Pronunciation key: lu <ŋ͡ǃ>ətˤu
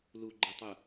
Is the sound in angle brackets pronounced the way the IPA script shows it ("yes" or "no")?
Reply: no